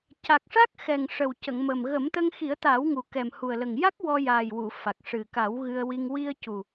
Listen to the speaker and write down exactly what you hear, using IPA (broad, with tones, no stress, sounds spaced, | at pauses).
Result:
c a˨˩ k̚ ʂ a˦˥ k̚ x ɛ˨˩ ŋ ʂ ə˨˩ w c ə˨˩˨ ŋ m ə˨˩ m ɣ ə˨˩˦ m t̪ ə˧ ŋ x i˨˩˦ ə̯ t̪ aː˨˩˦ w ŋ u˨˩ k ɛ˨˩ m h u˨˩ ə̯ l ə˨˩ ŋ j a˦˥ k̚ w ɔ˧ j aː˨˩ j w u˨˩˨ f a˨˩ k̚ ʂ ɨ˨˩ k a˨˩˦ w ɣ ɨ˧ ə̯ w i˧ ŋ w i˧ ə̯ c u˨˩